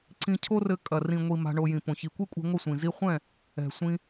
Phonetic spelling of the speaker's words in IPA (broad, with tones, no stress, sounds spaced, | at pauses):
ǀ ĩ˧ cʰ o˦ r ɘ˧ kʼ ɐ˨ r ĩ˨ ŋʷ i˨ m a̤˧ ɳ o˧ j ĩ˨ p õ˨ ç i˨ kʷ i˦ kʷʼ ɛ̤˧ ŋʷ ɘ˦˨ sʷ ĩ˨ z i˧ χʷ ɛ̃˦˨ | ɛ̤˨ sʷ ĩ˧